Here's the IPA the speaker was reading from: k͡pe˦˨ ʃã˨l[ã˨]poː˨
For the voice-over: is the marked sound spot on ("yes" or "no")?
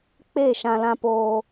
yes